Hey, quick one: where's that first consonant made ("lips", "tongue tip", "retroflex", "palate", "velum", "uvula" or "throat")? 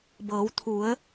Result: lips